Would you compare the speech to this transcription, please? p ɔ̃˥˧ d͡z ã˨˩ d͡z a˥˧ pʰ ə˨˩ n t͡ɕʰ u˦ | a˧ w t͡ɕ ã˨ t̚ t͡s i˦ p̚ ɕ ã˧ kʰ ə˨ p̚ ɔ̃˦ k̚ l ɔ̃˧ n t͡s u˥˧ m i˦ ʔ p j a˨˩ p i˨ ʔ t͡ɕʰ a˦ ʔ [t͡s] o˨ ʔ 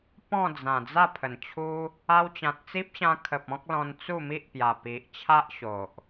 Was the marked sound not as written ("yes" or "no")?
yes